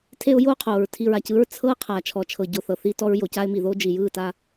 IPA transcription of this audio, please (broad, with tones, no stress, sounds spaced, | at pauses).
tʰ e˦ ʊ̯ j oː˦ qʰ oː˨ ɹ tʰ i˨ ɹ a˨ c ɯ˦ ɹ t͡sʰ ɤ˦ qʰ a˨ t͡ʃʰ ɔ˨ t͡ʃʰ ɤ˨ ɟ o˨ θ ɤ˨ θ i˦ t ɔ˦ ɹ j o˨ c a˦ ɪ̯ m i˨ ð oː˦ d͡ʒ i˨ j ɯː˦˨ t a˦